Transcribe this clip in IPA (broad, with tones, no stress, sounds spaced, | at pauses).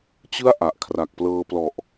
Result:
t͡ɕ ɯ˥˩ a̯ ʔ a˨˩ ʔ kʰ r a˨˩ k̚ p l ɤː˧ p l ɔ˨˩ ʔ